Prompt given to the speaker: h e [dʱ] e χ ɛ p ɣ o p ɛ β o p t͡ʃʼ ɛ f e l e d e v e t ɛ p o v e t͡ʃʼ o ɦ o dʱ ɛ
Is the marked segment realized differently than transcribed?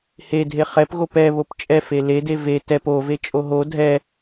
no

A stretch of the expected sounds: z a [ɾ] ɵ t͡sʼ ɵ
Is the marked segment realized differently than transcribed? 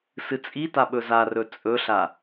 yes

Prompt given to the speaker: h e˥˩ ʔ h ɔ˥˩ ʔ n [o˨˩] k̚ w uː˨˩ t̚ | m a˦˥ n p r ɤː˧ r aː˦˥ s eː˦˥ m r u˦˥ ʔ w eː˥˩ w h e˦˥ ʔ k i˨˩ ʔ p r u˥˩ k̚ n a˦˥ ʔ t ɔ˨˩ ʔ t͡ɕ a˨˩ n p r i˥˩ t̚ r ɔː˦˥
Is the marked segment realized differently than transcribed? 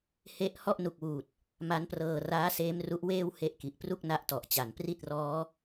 yes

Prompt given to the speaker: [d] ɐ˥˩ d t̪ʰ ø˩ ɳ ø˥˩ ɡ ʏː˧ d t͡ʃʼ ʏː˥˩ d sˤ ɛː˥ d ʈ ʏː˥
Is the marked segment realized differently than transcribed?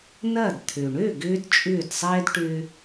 yes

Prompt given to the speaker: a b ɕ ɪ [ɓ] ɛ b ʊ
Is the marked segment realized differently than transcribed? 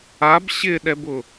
yes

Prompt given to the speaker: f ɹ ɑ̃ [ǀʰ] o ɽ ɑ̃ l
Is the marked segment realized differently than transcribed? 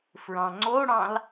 yes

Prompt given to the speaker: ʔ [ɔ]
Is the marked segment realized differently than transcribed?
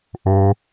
yes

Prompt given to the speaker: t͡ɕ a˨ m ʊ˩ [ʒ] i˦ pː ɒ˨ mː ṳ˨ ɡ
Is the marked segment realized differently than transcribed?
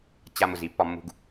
yes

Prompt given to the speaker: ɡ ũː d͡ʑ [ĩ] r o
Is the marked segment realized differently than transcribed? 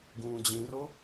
no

